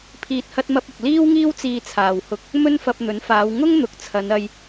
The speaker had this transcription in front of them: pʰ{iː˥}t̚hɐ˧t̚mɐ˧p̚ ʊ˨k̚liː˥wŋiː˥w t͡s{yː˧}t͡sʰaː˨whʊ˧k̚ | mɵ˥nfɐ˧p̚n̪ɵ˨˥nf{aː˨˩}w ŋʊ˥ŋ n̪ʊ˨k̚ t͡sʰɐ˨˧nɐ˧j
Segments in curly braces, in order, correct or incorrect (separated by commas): incorrect, incorrect, incorrect